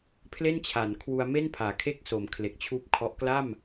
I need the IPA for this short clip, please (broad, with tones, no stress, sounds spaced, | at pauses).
pʰ l e˥˩ n t͡ɕʰ a˩˦ n kʰ w u˧ a̯ m e˥˩ n pʰ aː˩˦ kʰ e˥˩ k̚ s o˩˦ m kʰ l e˨˩ k̚ t͡ɕʰ uː˥˩ p̚ kʰ ɔ˦˥ ʔ k l a˥˩ m